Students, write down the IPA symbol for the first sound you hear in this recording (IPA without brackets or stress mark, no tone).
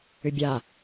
ʏ